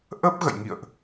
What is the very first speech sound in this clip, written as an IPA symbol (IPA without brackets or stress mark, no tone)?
ʔ